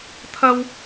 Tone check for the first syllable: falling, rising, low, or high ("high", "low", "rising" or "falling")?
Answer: high